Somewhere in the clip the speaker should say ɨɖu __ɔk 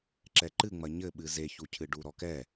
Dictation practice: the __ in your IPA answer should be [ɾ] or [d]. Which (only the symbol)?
ɾ